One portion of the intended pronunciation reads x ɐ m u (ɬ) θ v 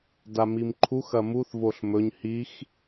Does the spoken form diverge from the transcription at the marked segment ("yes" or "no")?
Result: yes